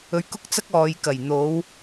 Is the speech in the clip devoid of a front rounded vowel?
yes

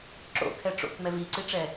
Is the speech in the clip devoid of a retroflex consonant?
no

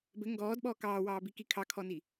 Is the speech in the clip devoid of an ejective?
yes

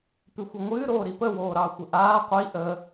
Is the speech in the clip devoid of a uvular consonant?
no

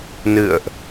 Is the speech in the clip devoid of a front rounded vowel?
yes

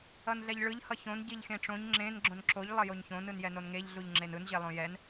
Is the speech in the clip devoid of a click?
no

